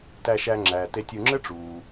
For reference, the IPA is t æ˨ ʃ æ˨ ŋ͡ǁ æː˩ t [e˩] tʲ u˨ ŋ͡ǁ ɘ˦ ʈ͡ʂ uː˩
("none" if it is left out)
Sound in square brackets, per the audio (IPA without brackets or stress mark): e˨